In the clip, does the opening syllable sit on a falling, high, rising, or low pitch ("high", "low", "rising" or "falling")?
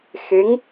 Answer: rising